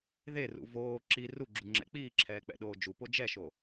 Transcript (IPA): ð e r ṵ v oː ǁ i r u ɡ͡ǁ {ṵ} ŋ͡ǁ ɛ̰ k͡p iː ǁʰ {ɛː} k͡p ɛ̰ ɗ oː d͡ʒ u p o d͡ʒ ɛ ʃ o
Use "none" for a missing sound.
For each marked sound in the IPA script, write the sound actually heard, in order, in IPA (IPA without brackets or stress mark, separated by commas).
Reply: u, ɛː